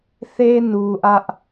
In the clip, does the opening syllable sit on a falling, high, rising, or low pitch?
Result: high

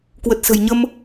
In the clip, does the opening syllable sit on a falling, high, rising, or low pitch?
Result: low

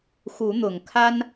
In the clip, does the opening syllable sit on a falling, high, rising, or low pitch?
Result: rising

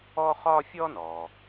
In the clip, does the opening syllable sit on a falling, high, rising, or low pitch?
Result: high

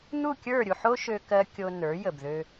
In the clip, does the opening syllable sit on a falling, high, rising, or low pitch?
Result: falling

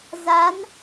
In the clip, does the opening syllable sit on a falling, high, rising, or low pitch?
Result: rising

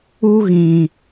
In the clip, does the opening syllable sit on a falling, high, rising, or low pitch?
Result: high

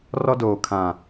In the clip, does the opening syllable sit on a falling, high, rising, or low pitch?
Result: high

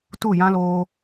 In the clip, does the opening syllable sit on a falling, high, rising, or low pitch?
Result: falling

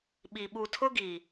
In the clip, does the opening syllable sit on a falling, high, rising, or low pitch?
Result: low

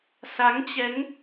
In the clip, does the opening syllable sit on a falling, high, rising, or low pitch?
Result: rising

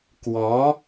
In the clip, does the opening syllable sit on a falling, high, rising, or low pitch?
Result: rising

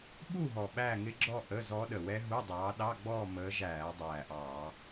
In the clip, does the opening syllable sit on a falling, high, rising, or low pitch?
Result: falling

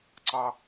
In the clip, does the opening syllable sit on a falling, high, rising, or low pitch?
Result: high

